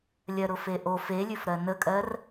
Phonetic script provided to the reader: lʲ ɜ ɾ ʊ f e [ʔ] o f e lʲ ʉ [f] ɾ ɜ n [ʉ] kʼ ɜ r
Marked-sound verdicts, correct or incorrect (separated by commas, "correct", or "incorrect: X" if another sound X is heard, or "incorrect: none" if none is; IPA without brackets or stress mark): correct, correct, incorrect: ə